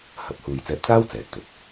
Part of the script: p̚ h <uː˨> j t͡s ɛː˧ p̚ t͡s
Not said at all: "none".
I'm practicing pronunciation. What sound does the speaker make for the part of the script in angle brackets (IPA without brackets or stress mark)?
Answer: uː˨